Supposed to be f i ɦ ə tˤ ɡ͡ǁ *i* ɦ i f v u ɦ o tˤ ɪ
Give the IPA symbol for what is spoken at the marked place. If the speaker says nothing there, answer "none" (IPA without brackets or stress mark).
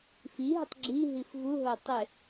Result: i